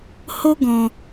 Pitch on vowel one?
high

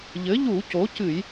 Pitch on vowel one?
rising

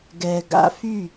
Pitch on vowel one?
low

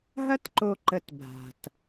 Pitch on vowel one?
high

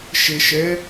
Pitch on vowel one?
low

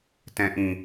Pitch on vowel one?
low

